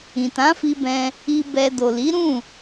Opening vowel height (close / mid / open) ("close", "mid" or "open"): close